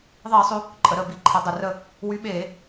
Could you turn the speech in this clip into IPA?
ðˤiː˧˩˧sˤʉ˩˧ | ǃʼə˩˧ɾəː˧˩ bi˧˩˧ǃʰɘ˩˧ dˤɘ˩rə˧˩ | wy˨˥ɓeː˧˩˧

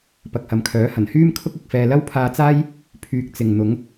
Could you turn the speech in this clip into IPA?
pɐ˨k̚hɐ˨mkʰœː˨˥ hɐ˨˩nhyː˥mkʰʊ˥k̚ ɪ˧k̚fɛː˧ lɐ˥wpʰaː˧t͡saː˥j | pʰyː˨k̚ t͡sɪ˨ŋn̪ʊ˨˥ŋ

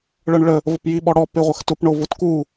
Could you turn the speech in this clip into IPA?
ɭɤɳɭə | vəpjiɓɔɽɔ peʁʷəxtʊp ɳovʊtku

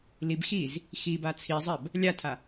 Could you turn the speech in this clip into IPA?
lib xiz | xiba t͡sʰizˤɛb | lʲatʰa

